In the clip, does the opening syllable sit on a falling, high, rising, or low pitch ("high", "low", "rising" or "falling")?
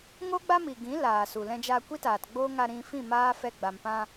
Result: high